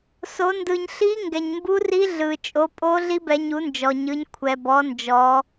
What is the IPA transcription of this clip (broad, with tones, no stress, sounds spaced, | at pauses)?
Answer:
s o˩˧ n d ɯ˩ ɲ ɬ i˧˥ ŋ ɡ ɛ˩ ɲ m b u˧˥ r i˧˥ ɮ ɯ˩ t͡ʃʼ o˩˧ pʼ o˧˥ ɮ i˧˥ b ɛ˩˧ ɲ u˩˧ n d͡ʒ ɔ˩ ɲ ɯ˩˧ ɲ kʷʰ ɛ˩ b ɔ˩˧ n d͡ʒ ɔ˩˧